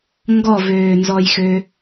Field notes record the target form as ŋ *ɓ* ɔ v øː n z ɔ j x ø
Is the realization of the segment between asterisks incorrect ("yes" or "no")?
yes